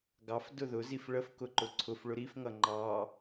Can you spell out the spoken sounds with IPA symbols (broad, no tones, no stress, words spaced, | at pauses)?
ɡɑf dʊðʊzif ɭəfkʊǃʊ ǀʰʊf ɭʊɾifŋʌ ŋ͡ǃɑ